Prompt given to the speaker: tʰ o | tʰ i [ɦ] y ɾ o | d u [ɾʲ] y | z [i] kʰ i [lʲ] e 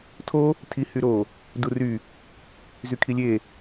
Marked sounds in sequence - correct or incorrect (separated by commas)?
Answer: incorrect, incorrect, incorrect, correct